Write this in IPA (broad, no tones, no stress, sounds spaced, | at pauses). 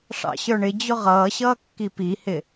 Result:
ʂ ɑ̰ ɕ ə˞ ɳ ɪ d͡ʑ ʊ ʁ ʌː ɕ ʌː kː i p i h ɪ